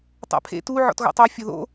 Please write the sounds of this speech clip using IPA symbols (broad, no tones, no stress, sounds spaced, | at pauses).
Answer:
tˤ a̰ pʰ ḛ t u ʕ ɔ̰ t ɣ o̰ tˤ e fʲ o ð o̰